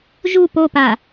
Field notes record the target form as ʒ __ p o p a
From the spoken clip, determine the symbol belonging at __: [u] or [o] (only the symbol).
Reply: u